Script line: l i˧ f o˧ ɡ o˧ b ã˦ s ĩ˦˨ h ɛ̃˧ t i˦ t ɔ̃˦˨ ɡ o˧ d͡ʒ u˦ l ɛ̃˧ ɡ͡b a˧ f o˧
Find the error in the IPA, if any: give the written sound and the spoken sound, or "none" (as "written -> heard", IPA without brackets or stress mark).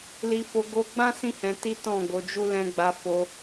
b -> ɡ͡b